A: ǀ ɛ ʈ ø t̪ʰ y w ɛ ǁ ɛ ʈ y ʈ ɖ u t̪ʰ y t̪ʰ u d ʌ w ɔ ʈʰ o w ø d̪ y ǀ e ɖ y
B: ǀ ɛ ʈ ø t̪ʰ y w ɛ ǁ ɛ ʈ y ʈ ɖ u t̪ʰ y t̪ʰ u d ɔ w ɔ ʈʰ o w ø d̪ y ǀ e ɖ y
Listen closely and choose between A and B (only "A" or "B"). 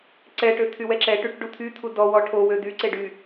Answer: B